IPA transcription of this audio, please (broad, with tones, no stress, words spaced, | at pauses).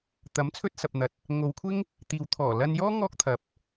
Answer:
t̪ɐ˨˥m t͡sʰɵ˥t̚sɐ˨p̚n̪ɐ˨t̚ | ŋo˨˧wkʷʰɪ˥ŋ | t̪iː˨w t̪ʰɔː˨˩ lɐ˧njɔː˥ ŋɔː˥k̚t̪ʰɐ˨p̚